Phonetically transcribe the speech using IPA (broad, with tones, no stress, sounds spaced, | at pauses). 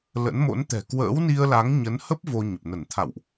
l ə̰˧˥ n m o̰˧˥ n t̪ ɛ̤˨˩ k w ə̰ː˧˥ w n i˧ ə̯ l a˨˦ ŋ ɲ ə˨˦ n h ə˦˥ p̚ v o˧ ɲ ə˨˩ p̚ n ə˧˩ n t̪ʰ a̰˧˨ w ʔ